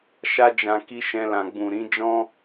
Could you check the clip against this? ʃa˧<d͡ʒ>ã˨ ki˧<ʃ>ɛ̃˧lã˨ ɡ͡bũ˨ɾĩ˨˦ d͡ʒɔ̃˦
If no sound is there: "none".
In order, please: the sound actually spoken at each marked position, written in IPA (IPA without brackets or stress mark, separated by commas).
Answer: d͡ʒ, ʃ